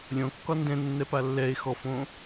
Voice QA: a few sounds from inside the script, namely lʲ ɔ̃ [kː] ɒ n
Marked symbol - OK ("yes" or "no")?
yes